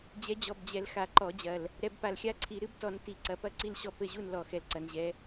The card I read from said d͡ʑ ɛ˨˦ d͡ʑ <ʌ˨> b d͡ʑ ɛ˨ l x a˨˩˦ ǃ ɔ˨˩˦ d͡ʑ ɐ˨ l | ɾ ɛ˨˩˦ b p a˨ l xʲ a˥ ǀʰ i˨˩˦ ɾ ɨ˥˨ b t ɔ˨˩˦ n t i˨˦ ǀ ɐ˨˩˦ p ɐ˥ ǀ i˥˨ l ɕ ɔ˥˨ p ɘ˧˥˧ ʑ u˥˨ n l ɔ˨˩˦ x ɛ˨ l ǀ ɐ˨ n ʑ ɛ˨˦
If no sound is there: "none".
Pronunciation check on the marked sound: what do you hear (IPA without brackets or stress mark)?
ɔ˨